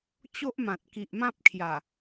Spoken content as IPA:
t͡ɕo˦ʔmã˨t̚ ki˨ʔmã˦p̚kʰja˨˩

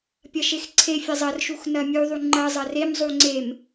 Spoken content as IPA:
pʲɐʃexǀʰefʲɐ zˤɐrʃux nɐmʲuðˤu ŋ͡ǃɐ zˤɐremzˤu ŋ͡ǀem

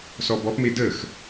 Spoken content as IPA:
sɔbɔpme dəx

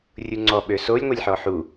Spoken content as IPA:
rʲuŋ͡ǀɔ ɓøsolʲ ŋʷɛlʲħɔħu

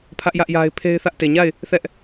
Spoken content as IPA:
pʰä˦ʔ jä˦ʔja˦ɪ̯ pʰe˦ɪ̯θä˦ʔ te˨ɲa˦˨ɪ̯ | θɛ˦ʔ

